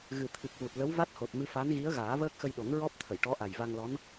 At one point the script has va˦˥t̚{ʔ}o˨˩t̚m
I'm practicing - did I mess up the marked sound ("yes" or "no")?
yes